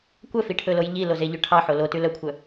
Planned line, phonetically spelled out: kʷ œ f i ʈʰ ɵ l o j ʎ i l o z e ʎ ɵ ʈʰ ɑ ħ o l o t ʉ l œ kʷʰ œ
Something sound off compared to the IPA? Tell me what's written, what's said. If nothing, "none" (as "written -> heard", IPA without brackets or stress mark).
none